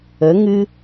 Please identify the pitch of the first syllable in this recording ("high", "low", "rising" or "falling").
rising